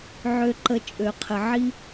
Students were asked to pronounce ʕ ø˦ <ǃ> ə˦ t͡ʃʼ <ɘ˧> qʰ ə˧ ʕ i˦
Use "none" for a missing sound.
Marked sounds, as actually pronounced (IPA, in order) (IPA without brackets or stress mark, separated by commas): ǃ, ø˧